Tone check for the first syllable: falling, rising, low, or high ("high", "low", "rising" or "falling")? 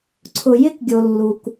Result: low